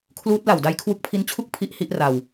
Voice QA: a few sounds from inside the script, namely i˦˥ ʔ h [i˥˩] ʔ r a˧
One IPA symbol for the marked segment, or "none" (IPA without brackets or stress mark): i˦˥